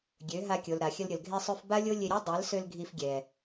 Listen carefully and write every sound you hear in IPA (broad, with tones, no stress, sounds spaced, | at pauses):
ɡʲ ø˨˦ ɦ a˧ kʲ o˨ l ɾ a˨ xʲ ə˧ l ɾʲ ə˨ l ɡʱ e˧ sˤ ø˧ f b a˦ lʲ o˦ lʲ e˧ ɾʲ ø˦ dˤ a˨˦ l s ø˧ l ɡʱ i˧ f ɡʲ ɛ˨